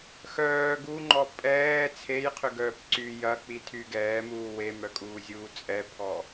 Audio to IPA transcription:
xœː ɡuŋ͡ǃɔ pʼɛː t͡sʰejqʰʏɡœːp ǀy jɐk͡pitʰy ɡɛːmuː wemœkʼuːzʲuː t͡sʼɛpʰɔ

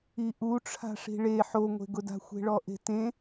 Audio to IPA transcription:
iʔu ʈ͡ʂʰa̤ʂi̤ɭe ħoŋʷe̤ɡʊda̤ xʷe̤ɭɔʔe̤tẽ

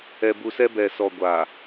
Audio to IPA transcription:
ɛ˨bu˨sɛ˦ bɛ˨sɔ˨ ɡʷa˨

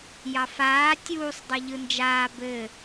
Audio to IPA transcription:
jɑfaː tʲuːsˤ dˤɘʎɯnd͡ʒaː bɘ

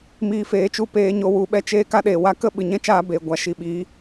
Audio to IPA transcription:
miː˧feː˨˦t͡ʃu˧peː˧ ɲo˧wu˧ ɓɛ˦t͡ʃeː˦ ka˦ɗeː˨wa˦ kə˦˨ɓɨ˨ɲɛ̃˦ t͡ʃaː˦beː˨ɡʷa˨˦ ʃi˧ ɓi˨˦

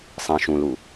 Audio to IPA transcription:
sˤĩ ʃũlu

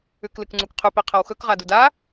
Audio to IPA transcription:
ʉklɨkŋ͡ǀukqʰʉ piqʰɐwxɵk ʁaduda

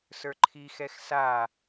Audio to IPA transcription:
sə˞ǃʰixɛx sa

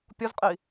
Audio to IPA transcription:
pʲozqʼi

